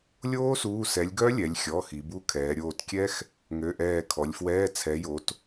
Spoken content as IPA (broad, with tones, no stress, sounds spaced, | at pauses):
lʲ oː˦˥ s uː˩˧˩ s ɛ˩˧ lʲ ɡ œ˦˥ lʲ ɛ˩˧ lʲ xʲ ɔ˩˧˩ x i˩˧ b u˦˥ kʰ ɛː˩˧ ɾʲ oː˧˩ t kʲ ɛ˦˥ x | ŋ ø˩˧˩ ʔ ɛː˧˩ kʰ ɔ˩˧ lʲ f w ɛː˧˥˧ t͡sʰ ɛ˩˧ j o˩˧ t